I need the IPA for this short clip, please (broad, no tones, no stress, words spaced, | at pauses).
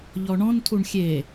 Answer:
ʎɔɳɔ̃ntʰuɳ xʲe